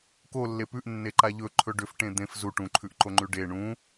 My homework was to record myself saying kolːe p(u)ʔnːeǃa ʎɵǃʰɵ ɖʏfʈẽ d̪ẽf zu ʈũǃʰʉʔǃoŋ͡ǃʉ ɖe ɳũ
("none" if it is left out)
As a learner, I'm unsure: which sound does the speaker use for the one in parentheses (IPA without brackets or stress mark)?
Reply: ʉ